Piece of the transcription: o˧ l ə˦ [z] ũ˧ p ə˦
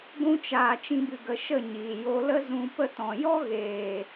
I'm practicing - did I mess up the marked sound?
no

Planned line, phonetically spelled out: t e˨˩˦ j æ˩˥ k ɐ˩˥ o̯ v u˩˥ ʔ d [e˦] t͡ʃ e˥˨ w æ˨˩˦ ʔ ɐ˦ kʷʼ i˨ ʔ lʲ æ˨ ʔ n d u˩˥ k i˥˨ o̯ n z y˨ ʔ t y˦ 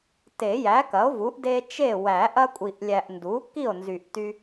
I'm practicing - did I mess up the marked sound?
no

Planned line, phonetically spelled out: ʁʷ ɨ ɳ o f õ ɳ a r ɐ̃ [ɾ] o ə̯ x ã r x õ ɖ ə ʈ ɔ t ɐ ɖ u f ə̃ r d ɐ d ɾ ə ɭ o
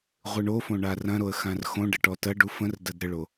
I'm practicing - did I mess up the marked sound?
no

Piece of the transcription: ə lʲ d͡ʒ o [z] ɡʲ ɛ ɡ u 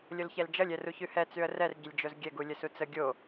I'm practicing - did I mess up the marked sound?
no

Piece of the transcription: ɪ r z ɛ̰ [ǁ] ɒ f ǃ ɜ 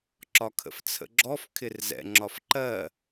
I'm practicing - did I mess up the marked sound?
yes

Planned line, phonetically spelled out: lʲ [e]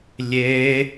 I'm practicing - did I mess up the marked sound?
no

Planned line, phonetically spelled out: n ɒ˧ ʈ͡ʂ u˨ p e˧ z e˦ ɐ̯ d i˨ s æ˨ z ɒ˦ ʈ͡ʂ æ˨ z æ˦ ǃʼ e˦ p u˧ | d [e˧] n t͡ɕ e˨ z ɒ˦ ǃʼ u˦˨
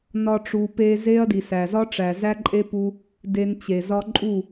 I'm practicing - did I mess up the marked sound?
no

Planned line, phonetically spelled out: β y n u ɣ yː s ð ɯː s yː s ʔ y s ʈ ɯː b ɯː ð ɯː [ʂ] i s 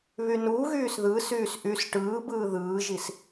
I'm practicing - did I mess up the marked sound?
yes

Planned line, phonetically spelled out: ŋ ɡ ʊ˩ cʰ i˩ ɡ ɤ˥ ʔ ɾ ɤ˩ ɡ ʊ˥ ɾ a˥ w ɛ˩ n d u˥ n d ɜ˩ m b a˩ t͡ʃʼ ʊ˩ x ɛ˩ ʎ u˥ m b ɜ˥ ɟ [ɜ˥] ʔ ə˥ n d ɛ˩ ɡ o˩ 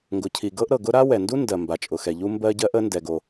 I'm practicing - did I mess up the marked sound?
no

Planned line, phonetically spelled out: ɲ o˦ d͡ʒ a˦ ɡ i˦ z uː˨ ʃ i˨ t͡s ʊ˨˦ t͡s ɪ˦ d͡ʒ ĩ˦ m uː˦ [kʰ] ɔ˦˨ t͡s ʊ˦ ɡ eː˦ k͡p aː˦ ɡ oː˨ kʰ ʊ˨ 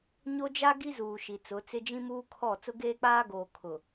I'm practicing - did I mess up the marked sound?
no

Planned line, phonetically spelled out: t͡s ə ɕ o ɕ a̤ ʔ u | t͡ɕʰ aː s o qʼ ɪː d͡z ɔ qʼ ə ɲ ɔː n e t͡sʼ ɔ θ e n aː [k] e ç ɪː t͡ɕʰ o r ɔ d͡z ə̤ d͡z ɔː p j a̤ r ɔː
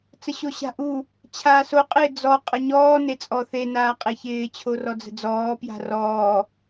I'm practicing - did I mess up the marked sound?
yes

